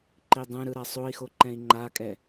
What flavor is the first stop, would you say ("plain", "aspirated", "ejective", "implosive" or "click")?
click